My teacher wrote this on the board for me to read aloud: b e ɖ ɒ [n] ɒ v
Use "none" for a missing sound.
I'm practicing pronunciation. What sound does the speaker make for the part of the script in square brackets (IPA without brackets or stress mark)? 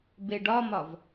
m